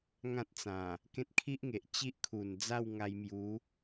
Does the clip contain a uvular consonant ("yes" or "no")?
no